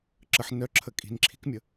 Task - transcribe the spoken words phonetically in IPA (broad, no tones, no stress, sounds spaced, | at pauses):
ǁ ə ħ n œ ǁʰ ə kʼ i̤ n ǁʰ i̤ k mʲ ə